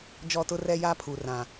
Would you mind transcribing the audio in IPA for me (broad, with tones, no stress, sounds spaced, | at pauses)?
d͡ʒ ɔ˦˨ t ʊ˦ r ɛ˦ j a˦ pʰ u˨ r ã˨